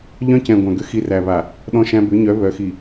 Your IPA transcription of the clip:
ʎ œ̃˦ c ɛ̃˨ ɡʷ æ̃˨ ɡ ʏ˦ x i˦ r æ˨ β a˨ | ɗ ɔ̃˦ ʃ æ̃˦ b ʏ˨˦ ɲ œ˨˦ β œ˨ x i˨

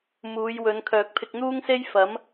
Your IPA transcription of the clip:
m uː˨˧ j w ɵ˨˧ n kʰ œː˨ k̚ pʰ ɪ˧ k̚ n̪ uː˥ ŋ s e˥ j f ɐ˨˥ m

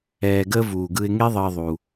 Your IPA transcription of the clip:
ɛː˧ ɡ əː˦ v uː˨ ɡ ɯ˧ ɪ̯ ŋ e˦ ðˤ əː˧ ðˤ u˧

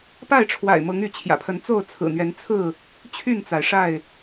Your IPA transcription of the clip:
p a˥˨ ɪ̯ ʈ͡ʂʰ w a̰˨˩ ɪ̯ m ɤ˨˦ ŋ y˨˦ t͡ɕʰ j ä̰˨˩ pʰ ə˨˦ n t͡s o˥˨ ʊ̯ t͡sʰ ɹ̩˨˩ n̪ ɥ ɛ˨˦ n t͡sʰ ɹ̩˥˨ | t͡ɕʰ y˥˨ n t͡s a˩ ɪ̯ ʂ a˥˨ ɪ̯

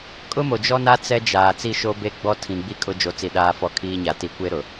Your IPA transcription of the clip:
kʼ ʊ˦ m o˨ d͡ʒ ɔ˦ n a˦ t͡s ɛ˦ d͡ʒ aː˨ t͡s i˦ ʃ o˦ b e˦ ɡ͡b ɔ˦ tʰ ĩ˨ ɡ͡b i˦ kʼ ʊ˦ d͡ʒ o˨˦ t͡s i˨ ɗ aː˦˨ f ɔ˦ kʰ iː˦ ɲ a˨ t i˨ kʷ e˦ ɾ ʊ˨

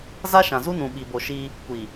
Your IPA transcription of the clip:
z a˦ ʃ ã˨ z u˦ n ũ˨ ɓ i˨ b o˨ ʃ i˦ | kʷ i˨

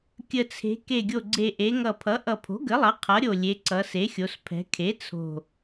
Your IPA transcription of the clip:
kʲ ə˨˩ t͡sʰ e̤˩˧ k e˨˩ ɡʲ o˨˩ ɡ͡ǀ e˨˩ ʔ e˩˧ ŋ ʌ˨˩ pʰ ʌ˩˥ ʔ ʌ˨˩ pʰ o̤˩˥ ɡ ə˩˥ lˠ ʌ˩˥ qʰ ʌ˩˥ ɾʲ o˨˩ lʲ e˩˧ ǀ ʌ˩˧ s e˩˥ xʲ o˩˧ s pʰ ɛ̤˩˧ kʰ e˩˥ t͡sʰ o̤˨˩

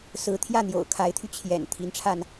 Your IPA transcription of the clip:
s ɹ̩˧˥ t̪ʰ j ä˥˩ n̪ j o̰˨˩ ʊ̯ kʰ a˧˥ ɪ̯ t̪ʰ y˧ t͡ɕʰ j ɛ̰˨˩ n t̪ʰ i˧˥ n ʈ͡ʂʰ a˧ n

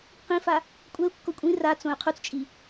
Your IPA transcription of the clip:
q ĩ f a | kʷʼ ɛ u̯ kː o kʷʼ ĩ r a t͡s õ y̯ qʰ u t͡s t͡ʃʼ i

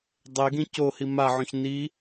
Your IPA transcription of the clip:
dˤ e ɡ ĩ c o h i m a ʕ õ ç n i

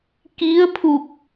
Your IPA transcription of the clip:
k i˧˥ ə̯ pʰ u˧˩ k̚

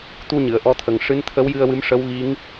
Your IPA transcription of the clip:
t̪ u˧ ɲ ɨ˨˩˨ ə̯ ʔ ɔ˧ t̪ʰ ə˨˩ ŋ ʂ ɨ˧˥ n t̪ʰ ə˧˥ w j ɨ˧ ə̯ w ɨ˧˥ m ʂ ə˧˥ w ɣ i˧˥ ŋ

